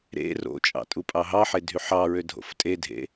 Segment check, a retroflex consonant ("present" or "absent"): absent